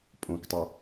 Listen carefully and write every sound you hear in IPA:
pʼ õ k tˤ ʌ

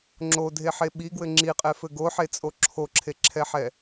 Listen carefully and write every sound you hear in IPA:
ŋ͡ǁ o dʱ e ħ e ɓ i ɡ w ɘ ŋ͡ǁ i qʼ ɛ f ɘ ɡ o ħ e t͡sʼ o ǁʰ o ǁʰ e ǁʰ ɛ ħ ɛ

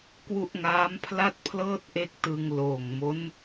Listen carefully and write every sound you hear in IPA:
k w u˦˥ ʔ ŋ aː˦˥ m pʰ l a˥˩ t̚ pʰ l ɤː˥˩ t̚ ʔ e˦˥ k̚ t ɯ˧ ŋ l oː˨˩ ŋ m o˦˥ n

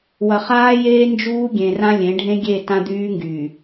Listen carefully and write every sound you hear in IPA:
w ɐ˨ χ aː˦ j eː˦ n d͡ʒ uː˦ ɡʲ ẽ˨ r ã˦ lʲ ẽ˨˦ ɖʱ ẽ˦ ɡʲ e˦˨ t ã˦ d̪ yː˦ ŋ ɡ yː˨

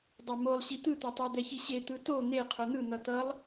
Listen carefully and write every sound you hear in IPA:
dˤ a m o lˠ ɕ i t̪ ɯ t̪ a tˤ ʌ d̪ ɛ ç i ɕ e t̪ ɯ t o n̪ e qʰ o n̪ ɯ n̪ ʌ t̪ ʌ lˠ

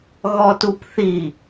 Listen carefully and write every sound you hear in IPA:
ɣ ɔ t u p θ i

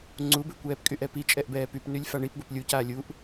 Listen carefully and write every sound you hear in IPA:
ŋ͡ǀ u b e kʷ ɛː p kʼ y ʔ ɛ p i t͡ʃʼ ɛ ʔ b ɛː p y p n ʉ lʲ f a ɳ i p ɡʷ e p lʲ u c aː lʲ u ʔ

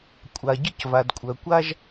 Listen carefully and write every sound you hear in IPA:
kʷʼ a˩ ɟ ʌ˧ c v a˩ d kʷʼ œ˩ kʷ a˧ ʒ

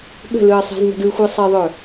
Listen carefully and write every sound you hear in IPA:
ɠ ə̤ l ɯ ə̯ sˤ ɛ̤ z n ə̤ d ɯ xʷ ɨ sˤ ɛ ðˤ ɵ

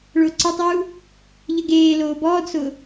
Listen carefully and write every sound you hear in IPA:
ɭ ʊː ǀ ə tˤ uː | ʎ ə ɡ eː l oː b ɔː d s ʊː

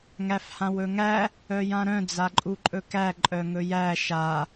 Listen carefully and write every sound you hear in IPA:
ŋ æ f h ã w ɵ ŋ æ | œ j ã ɾ œ̃ d͡z a ǃʼ u ǃʼ ɵ k æ ǃʼ œ ŋ ɵ j æ ʃ a

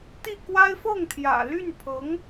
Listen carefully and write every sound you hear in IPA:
t̪ i˥˩ k w a˥ ɪ̯ f ɤ˥˩ ŋ t̪ʰ j ä̰˨˩ l y˥˩ n pʰ ɤ˧˥ ŋ

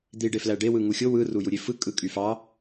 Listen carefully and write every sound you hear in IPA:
d̪ i ɖ e f l æ ɖ e w ɯ ŋ u xʲ o w ɯ r u j u ɾʲ e f ɯ kʼ ɯ kʼ y f ɑ

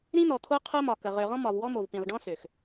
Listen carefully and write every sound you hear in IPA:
ɾ ĩ˦ n̪ ɔ˨ t̪ʰ o˦ qʰ o˦ m ɒ˨ k ə˨ ʁ ø˨ ʁ ɔ̃˦ m ɒ˨ v w ɔ˦ m o˨ v p ĩ˨ ʁ ɖ ɔ̃˦ s ø˨ x

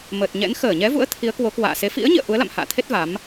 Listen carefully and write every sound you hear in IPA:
m əː˨˩ t̚ ɲ ɛ̰˧˥ n x əː˧˩ ɲ ɛ˨˦ v ṵ˧˥ ə̯ t̪ʰ i˨˦ ə̯ k w o˨˦ k w a̰ː˧˨ s e˨˦ f ḭ˧˥ ə̯ ɲ ḭ˧˨ ə̯ ʔ u˨˦ ə̯ l a̰˧˨ m h a̰ː˧˨ t̪ʰ e˦˥ t̚ v a˨˦ m

